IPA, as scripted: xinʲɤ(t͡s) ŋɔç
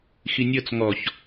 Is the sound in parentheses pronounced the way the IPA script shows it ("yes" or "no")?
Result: yes